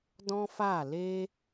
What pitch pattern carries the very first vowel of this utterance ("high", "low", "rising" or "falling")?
high